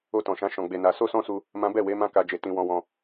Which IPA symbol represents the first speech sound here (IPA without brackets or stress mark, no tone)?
o